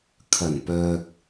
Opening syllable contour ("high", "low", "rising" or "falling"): low